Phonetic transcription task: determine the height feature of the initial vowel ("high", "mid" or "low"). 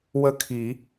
mid